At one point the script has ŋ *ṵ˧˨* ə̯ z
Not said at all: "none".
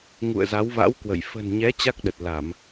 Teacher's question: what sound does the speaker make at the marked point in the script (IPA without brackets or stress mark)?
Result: ṵ˧˨